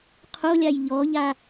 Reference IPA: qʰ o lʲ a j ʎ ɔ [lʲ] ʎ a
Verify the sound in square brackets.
incorrect: none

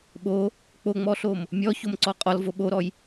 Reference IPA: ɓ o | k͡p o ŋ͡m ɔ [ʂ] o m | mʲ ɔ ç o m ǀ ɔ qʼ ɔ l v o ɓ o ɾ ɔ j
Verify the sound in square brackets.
incorrect: ɬ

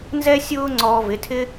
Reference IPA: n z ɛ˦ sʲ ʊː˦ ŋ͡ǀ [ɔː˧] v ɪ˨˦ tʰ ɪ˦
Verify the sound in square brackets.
correct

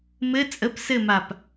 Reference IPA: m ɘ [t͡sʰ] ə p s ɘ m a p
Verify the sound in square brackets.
incorrect: t͡sʼ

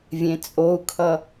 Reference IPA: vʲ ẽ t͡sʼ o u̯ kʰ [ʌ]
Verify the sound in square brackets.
correct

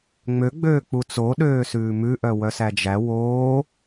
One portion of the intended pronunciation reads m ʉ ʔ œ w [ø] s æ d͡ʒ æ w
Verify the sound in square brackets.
incorrect: œ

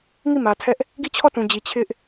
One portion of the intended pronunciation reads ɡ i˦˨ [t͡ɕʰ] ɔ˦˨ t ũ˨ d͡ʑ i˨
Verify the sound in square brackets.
correct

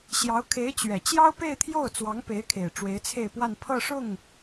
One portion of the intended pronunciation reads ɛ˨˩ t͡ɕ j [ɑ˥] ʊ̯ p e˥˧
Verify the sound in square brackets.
correct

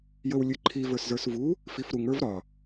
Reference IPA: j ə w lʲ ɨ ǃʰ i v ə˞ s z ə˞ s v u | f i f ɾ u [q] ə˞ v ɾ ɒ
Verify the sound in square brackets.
incorrect: ŋ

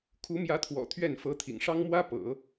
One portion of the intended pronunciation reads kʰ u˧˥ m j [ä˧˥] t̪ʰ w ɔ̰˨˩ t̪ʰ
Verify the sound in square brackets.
correct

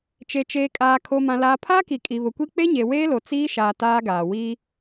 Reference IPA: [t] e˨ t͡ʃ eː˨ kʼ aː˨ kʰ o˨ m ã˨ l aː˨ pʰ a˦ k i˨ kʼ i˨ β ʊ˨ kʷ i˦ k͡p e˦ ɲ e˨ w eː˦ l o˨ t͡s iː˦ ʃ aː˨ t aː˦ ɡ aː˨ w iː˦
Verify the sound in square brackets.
incorrect: t͡ʃ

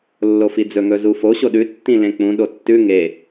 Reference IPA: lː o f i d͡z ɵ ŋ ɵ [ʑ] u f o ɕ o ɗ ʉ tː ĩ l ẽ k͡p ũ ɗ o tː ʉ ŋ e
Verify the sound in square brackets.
incorrect: z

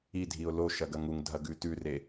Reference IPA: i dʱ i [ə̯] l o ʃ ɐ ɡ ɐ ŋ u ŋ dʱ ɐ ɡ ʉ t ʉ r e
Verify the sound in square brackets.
incorrect: ʊ̯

